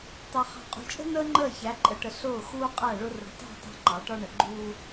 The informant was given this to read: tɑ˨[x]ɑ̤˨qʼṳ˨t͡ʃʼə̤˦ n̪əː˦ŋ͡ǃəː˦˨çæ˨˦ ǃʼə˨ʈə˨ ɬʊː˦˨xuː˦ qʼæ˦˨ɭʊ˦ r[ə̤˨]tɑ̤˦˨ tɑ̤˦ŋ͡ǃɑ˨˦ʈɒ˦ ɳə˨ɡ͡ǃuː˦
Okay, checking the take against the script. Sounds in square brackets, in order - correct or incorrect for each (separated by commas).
incorrect, correct